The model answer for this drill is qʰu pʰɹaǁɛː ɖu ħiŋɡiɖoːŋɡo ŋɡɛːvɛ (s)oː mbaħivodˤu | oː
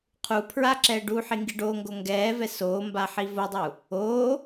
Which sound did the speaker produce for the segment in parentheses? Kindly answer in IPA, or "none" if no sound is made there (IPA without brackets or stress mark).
s